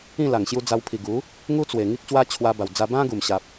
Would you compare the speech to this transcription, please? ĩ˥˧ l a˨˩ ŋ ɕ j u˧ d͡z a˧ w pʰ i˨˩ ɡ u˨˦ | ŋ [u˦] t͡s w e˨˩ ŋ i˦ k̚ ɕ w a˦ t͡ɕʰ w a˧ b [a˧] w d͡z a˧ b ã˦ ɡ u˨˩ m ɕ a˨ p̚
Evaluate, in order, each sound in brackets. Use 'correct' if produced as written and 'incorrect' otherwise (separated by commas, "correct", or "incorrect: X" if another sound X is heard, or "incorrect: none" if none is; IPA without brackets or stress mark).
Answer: correct, incorrect: a˨˩